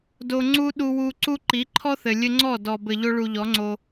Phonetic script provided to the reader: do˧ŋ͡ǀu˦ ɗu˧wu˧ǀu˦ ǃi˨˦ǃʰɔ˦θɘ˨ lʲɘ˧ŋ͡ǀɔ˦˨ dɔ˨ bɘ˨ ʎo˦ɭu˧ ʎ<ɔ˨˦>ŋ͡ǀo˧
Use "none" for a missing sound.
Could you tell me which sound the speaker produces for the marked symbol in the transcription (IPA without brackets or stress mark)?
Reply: ɔ˨˦